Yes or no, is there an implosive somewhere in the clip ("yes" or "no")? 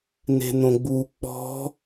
no